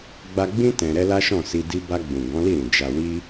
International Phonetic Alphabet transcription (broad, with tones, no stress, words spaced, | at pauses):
ɡ͡ba˧ɡ͡bĩ˦ tɛ̃˧ ɾɛ˦la˦ʃɔ̃˦˨ si˧di˦ ba˧ɡ͡bũ˨ ɡɔ̃˨˦li˦˨ɾĩ˨ d͡ʒa˨wi˧